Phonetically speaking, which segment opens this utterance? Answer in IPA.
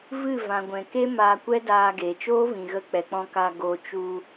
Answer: v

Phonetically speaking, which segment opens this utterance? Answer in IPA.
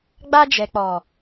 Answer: ɡ͡b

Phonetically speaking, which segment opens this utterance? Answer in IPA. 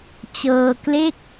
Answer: t͡ɕ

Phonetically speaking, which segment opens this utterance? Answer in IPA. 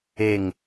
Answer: e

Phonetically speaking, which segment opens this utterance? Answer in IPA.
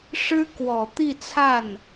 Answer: ʂ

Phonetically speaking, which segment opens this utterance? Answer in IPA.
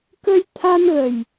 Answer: k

